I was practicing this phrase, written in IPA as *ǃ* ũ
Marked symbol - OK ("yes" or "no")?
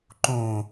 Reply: yes